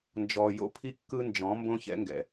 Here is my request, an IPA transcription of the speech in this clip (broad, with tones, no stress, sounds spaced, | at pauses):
n d͡ʒ ɔ˨ j o̰˦ pʰ i˦ kː ɯ˦ n d͡ʒ ɔ̃˨˦ m b õ˦ ç ɛ̰˦ ŋ ɡ ɛ̰˨